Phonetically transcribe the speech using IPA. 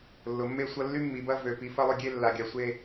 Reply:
lːʊ˩˧mːe˥˩ sʷɐ˥˧lːy˥mːi˩˧bɐ˥˧ vø˨˩ pi˨˩fɐ˥˧lˠʊ˥˩ɡʲe˥˧ lːa˨˩ɡʲa˨˩sʷe˥˧

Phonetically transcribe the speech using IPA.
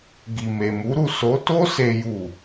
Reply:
ɡi˨me˨mu˨˦ɾu˦˨ so˨˦to˦ se˦ju˦˨

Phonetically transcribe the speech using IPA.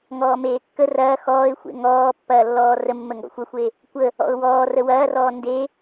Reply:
ŋɔːmeːkːə rɐː xɔːɪ̯xʷḛ ŋɔːpːɐːlːɔː rəmːəŋɡɔ̰ xʷɐxʷe | kʷə | ɔ̰ʊ̯wɔː rəwɐːrɔː nde

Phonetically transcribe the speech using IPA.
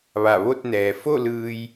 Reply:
ʋa˧˩ʋo˥˨t̚ nɛː˩fo˥˨lɯː˧j

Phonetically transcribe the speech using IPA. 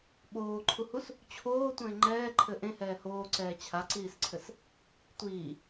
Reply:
ɓoːǃʰuhus | t͡ɕʰoːtʷɛ̃ɪ̯ ŋ͡ǃɛːǃʰɘ ʔẽhɛː hoːǀɛː t͡ɕʰaǀiːsǀʰɘs | tʷiː

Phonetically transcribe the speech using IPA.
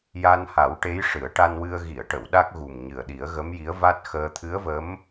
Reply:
ja˧nha˨˩˦w ʈe˧˥jʂɨ˨˩˦ə̯ʈa˧nwɨ˧ə̯ ɣi˨˩˨ə̯ʈə˨˩˨w ɗa˦˥k̚ɣu˨˩mɲɨ˨˩ə̯ɗi˨˩˦ə̯ ɣə˧˥mji˧˥ə̯va˦˥t̚xəː˧ t̪ʰɨ˧˥ə̯və˧˥m

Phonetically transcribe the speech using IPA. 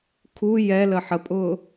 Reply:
kʰu jɛlə ħəpʼʊː

